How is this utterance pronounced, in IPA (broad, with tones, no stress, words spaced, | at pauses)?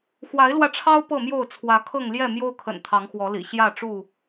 xwa˨˦ɪ̯lwä˧ʈ͡ʂʰɑ˦ʊ̯ pɤ˥˨mjo˥˨ʊ̯ t͡sʰwä˨˦kʰɤ˥˨ŋ ljɛ˥˨mjo˦ʊ̯kʰə̰˨˩n t̪ʰɑ˨˦ŋxwɔ˨˦lḭ˨˩ ɕjä˥˨ʈ͡ʂu˥˨